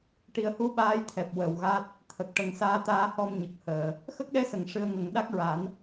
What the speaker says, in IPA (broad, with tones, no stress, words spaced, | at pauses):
ʈi˨˩ə̯hu˧˥ ɓaː˧˥jt̪ʰɛ˨˩p̚ wə˨˩wɣa˦˥t̚ | t̪ʰə˨˩k̚ʈə˨˩ŋ saː˧t̪aː˧hɔ˧m ɲə˨˩k̚ həː˨˩˨ | xə˦˥k̚ɗɛ˧˥sə˨˩˨ŋ ʂɨ˧ə̯ŋə˨˩˦ŋ ɗa˦˥k̚ɹa˨˩˦n